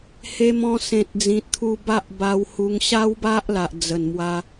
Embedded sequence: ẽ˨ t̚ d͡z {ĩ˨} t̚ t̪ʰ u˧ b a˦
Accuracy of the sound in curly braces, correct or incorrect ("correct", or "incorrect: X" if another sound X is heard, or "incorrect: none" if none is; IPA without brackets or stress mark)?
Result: correct